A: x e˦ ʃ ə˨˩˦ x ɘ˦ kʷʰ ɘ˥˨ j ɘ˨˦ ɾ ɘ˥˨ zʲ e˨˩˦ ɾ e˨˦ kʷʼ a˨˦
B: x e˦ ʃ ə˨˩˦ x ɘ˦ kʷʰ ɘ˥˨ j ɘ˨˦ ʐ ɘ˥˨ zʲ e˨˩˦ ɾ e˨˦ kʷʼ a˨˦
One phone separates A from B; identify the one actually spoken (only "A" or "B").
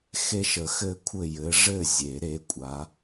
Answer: B